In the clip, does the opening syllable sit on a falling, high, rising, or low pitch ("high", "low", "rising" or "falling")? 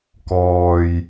low